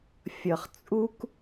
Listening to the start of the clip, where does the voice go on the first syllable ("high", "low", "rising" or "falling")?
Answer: low